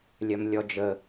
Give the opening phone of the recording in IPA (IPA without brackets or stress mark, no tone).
lʲ